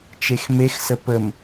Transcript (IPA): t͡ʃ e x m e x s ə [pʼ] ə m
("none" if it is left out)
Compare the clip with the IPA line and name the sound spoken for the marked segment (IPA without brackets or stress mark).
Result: p